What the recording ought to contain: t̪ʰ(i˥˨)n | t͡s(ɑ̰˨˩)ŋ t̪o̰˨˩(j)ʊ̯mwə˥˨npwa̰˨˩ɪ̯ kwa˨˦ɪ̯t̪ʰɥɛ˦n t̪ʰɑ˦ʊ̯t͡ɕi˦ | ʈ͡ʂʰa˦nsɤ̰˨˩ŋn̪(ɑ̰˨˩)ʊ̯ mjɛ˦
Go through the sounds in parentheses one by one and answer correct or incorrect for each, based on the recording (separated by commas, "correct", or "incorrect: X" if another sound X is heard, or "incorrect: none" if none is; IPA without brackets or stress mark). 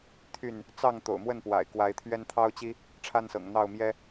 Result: incorrect: y˥˨, incorrect: ɑ˥˨, incorrect: none, incorrect: ɑ˥˨